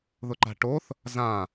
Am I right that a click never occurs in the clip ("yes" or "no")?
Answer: no